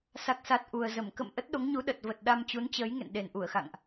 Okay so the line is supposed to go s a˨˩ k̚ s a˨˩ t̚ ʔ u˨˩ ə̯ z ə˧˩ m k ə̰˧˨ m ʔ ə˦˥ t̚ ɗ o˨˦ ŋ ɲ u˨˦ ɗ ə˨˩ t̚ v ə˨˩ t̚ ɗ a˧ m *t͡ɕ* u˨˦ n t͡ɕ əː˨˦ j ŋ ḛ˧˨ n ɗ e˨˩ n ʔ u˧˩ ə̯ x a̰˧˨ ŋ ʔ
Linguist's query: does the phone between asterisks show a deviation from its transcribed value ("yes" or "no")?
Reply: no